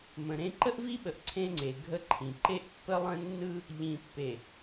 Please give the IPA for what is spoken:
m ə̃˨ ɾ ẽ˦ ǃ ə˦ ʔ v i˦ ɓ ə˨ ʔ ǀʰ ẽ˦ ŋ͡ǀ e˨ ɡʱ ə˦ ǃʰ ĩ˨ ǃ e˦ ʔ pː ə˦ lˠ ə̃˦ nː ɯ˦ | ʎ ĩ˨ pː e˨

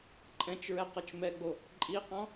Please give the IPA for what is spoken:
ǃʼ ɛ̃ t͡ʃ ɹ ɛ q ɤ t͡ʃ m ɛ ɡ͡b o | ǃʼ i q ɔ̃

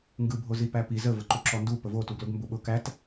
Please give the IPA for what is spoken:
ŋ ɡ ɯ bʱ o z i p æ p i z ə v ə ǃ u ǁ ɔ n d u p ə v o t u ɡ l ʊ ɡ m b ʊ ɓ ʊ k æ t

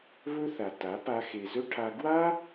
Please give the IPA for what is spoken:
β ɵ˦ θ a˨ t a˨˦ p a˧ x e˨ z ɵ˦ ʈʰ a˧ ɡ w a˦

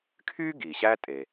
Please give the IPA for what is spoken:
kʰ y˥ ɡ i˩ ɕ æ˥ tʼ e˩

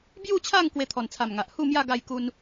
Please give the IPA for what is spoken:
b j u˥˧ t͡ɕʰ a˥˧ ŋ k w e˧ t̪ʰ ɔ˨˩ n t͡sʰ a˨˩ m ŋ a˨ ʔ h u˥˧ m j a˥˧ ɡ a˥˧ j k u˦ n

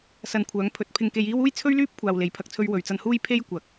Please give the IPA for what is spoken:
s ɐ˨ n kʷʰ œː˨˧ ŋ pʰ ɵ˨ t̚ pʰ ɪ˧ ŋ k e˧ j iː˥ w uː˥ j t͡sʰ ɵ˥ ɥ l yː˥ p̚ kʷʰ aː˨ w l e˨˥ j pʰ ɐ˨ k̚ t͡sʰ ɵ˧ ɥ w ɵ˨ ɥ t͡s ɐ˧ n h uː˥ j pʰ e˥ j kʷ ɐ˨˥ k̚

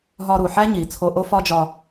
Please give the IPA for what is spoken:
ɦ ɒ˧ ɾ u˩ ħ æ˥ ɲ i˩ t͡sʰ o˧ ʔ o˥ f ɒ˥ d͡ʒ ɒ˧

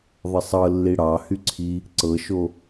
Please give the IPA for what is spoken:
ðˤ ə sˤ ɤ lː i ɽ ɑ h y ǀʰ i | ǀ ɤ ʃ o

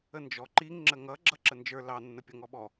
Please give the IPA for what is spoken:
ə n d͡ʒ ɔ ǃ i ŋ ŋ͡ǁ ə ŋ ʌ ɡ͡ǁ ʌ ǁ ə n d͡ʒ ə˞ l ɑ nː ə pʲ ʌ ŋ ɔ ɓ ɔ

